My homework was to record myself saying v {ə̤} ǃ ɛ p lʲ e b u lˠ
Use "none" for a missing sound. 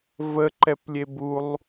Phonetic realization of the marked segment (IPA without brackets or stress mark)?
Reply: ə